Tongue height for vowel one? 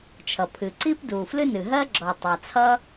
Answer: mid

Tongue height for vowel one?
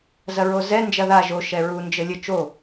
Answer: low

